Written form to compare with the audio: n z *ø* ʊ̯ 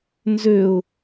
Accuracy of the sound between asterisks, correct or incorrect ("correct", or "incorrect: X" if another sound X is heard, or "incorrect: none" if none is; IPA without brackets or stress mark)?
correct